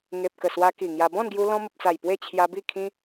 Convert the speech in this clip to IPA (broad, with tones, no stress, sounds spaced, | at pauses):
ŋ e˨ p̚ k ə˨˩ s w a˧ k i˨˩ ŋ j a˧ b ɔ̃˥˧ n ɡ j u˧ l ɔ̃˧ m ə˨ p̚ t͡s a˨˩ j p w e˥˧ t͡ɕʰ j a˧ b i˥˧ kʰ ĩ˦